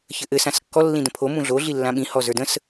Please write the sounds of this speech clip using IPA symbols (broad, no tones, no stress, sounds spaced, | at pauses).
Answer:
ç ɘ ʔ ɘ s ã s kː ɔ lː ĩ d ə̃ pʰ o m ũ ɮ o ɮ i lː ã ɓ ĩ h ɔ z ə˞ d ə̃ s